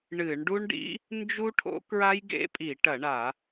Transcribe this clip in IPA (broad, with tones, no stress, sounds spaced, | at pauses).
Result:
ɳ ɨ˧˩˧ ɳ ɖ u˦˥ ɳ ɖ ḭ˦˥ | n d͡ʒ u˦˥ ʈʰ o̰˦˥ k ɹ a˦˥ j ɡ ḛ˦˥ pʼ i˧˩˧ ʈ ɐ˧˩˧ ɳ a˧˩˧